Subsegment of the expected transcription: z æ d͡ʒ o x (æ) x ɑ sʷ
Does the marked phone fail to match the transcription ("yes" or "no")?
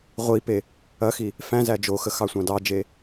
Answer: yes